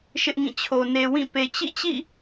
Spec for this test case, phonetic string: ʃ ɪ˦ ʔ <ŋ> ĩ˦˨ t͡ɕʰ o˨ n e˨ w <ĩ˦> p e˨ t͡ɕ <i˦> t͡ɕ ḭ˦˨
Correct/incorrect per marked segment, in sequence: correct, incorrect, incorrect

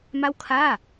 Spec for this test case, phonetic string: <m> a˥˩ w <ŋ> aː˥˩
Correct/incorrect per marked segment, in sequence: correct, incorrect

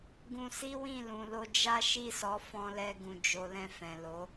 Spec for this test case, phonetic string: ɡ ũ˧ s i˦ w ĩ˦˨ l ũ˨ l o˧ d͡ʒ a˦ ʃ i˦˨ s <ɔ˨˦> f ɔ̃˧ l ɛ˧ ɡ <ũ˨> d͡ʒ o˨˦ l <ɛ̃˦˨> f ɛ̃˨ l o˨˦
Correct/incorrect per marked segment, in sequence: correct, correct, correct

